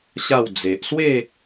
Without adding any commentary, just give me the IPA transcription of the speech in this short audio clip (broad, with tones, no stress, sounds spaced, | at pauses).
ɕ a˥˧ w d͡z e˨ ʔ s w e˥˧